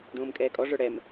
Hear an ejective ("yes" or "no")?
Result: yes